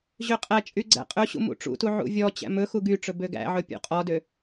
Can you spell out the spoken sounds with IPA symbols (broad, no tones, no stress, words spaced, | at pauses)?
ʑøqʼæt͡ʃʼy ɡ͡ǀæ̰qʼɵɕṵ mṵʈ͡ʂṵtu ʕṵvʲɔt͡ɕæ̰ mɵxu ɡyʈ͡ʂɵ bøɡæ̰ʕɵ pʲṵqʼɔdø